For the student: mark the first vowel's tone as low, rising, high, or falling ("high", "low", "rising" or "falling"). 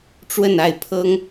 falling